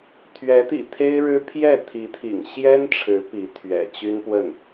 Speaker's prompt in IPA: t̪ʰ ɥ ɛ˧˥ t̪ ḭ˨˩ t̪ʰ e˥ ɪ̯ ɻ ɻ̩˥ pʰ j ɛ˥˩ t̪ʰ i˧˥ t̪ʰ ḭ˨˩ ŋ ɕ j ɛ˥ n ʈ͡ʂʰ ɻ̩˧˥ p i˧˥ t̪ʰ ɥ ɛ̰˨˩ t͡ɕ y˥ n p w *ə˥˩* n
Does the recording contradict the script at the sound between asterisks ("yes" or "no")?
no